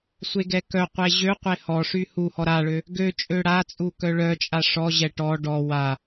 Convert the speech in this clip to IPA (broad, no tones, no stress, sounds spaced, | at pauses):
sʷ e ɡ ɛ k œ qʷ e ʑ ø qʷ e h ɔ ʂ y h u h ɔ ɾ a ɭ ø | ɡ ø t͡ʃʼ ø ɽ a t͡sʼ u k œ ɭ œ t͡ʃʼ a ʂ ɔ ʑ ɛ ʈ ɔ ɖ ɔ w a